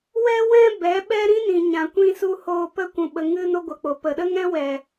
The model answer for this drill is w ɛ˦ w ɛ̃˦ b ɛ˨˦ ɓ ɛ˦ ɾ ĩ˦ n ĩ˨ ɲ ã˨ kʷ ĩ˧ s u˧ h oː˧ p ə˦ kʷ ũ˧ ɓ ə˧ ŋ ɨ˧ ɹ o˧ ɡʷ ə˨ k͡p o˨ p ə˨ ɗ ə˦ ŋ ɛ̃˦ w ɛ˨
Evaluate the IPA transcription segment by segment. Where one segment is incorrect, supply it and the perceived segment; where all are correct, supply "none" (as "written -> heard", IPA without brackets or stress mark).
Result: ɹ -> n